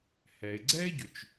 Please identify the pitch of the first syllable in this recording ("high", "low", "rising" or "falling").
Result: low